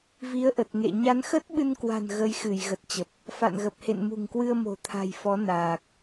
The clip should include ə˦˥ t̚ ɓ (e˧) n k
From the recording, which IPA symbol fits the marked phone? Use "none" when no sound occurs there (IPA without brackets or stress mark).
ɨ˧